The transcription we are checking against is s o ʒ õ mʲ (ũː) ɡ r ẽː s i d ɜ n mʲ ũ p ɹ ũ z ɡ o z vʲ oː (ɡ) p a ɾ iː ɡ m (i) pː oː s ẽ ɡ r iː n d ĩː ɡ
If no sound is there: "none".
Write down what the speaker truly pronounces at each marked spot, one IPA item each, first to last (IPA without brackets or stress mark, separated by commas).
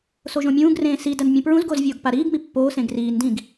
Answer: ũː, ɡ, i